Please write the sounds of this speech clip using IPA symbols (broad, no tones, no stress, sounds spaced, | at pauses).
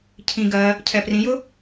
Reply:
cʰ ĩ ɡ ɜ | cʰ ɛ p r ĩ j ʊ